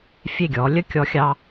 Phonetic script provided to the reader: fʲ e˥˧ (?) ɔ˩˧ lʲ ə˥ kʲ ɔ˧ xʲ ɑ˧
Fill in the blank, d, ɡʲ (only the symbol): ɡʲ